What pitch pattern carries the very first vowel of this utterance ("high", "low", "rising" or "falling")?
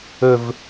high